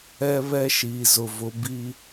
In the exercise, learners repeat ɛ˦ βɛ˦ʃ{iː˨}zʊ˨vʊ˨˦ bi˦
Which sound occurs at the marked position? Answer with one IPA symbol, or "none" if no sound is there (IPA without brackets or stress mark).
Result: iː˨